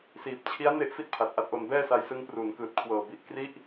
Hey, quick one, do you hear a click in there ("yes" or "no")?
no